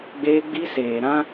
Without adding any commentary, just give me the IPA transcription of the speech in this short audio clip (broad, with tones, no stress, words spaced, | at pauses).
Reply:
ɡ͡beː˦ɡ͡bi˦seː˨ɾã˦